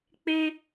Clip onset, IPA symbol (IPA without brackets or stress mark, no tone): k͡p